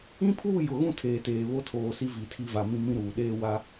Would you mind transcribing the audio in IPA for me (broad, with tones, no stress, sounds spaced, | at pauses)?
ĩ˦ pʰ uː˦˨ j ʊ˨ ɣ ũ˦˨ tʰ eː˨ t eː˨ β o˦ tʰ oː˨ s i˦ v i˨ tʰ i˦ v a˨ m ĩ˦ m ĩ˦ ɾ uː˨ ɗ eː˦ w a˦